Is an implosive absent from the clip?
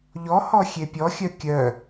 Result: yes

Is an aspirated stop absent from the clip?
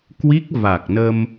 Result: yes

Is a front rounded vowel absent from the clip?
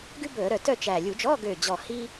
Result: no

